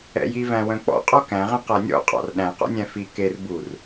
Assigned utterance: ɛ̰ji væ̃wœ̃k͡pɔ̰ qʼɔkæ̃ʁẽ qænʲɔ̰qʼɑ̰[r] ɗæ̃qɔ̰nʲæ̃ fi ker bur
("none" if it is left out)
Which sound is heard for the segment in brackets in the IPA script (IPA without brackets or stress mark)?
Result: r